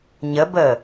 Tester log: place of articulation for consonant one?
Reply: palatal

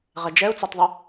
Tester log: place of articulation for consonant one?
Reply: uvular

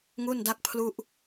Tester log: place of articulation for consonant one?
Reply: velar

